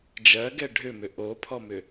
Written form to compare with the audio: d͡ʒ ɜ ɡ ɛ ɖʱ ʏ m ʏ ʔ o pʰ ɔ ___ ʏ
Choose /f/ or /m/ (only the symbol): m